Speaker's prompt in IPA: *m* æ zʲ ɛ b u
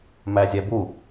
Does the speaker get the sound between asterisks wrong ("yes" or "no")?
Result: no